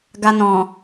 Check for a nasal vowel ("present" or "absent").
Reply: present